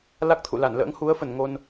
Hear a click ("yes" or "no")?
no